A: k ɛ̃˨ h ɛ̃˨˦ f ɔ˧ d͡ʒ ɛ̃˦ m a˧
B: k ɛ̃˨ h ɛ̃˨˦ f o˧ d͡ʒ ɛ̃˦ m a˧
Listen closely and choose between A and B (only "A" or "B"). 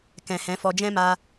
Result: A